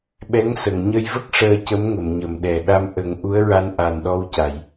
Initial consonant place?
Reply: labial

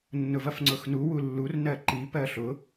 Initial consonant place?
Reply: alveolar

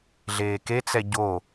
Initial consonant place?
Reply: alveolar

